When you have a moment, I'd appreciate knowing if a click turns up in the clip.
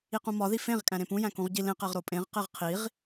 no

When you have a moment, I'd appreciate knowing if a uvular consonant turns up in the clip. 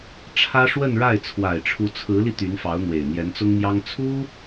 no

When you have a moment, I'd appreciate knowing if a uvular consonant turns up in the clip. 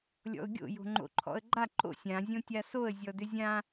no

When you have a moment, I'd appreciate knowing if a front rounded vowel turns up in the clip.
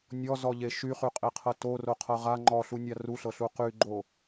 yes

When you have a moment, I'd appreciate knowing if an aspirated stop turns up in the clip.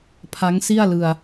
yes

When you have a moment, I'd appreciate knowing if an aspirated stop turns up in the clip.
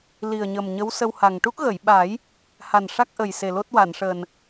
no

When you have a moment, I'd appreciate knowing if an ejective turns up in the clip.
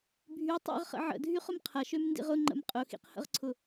yes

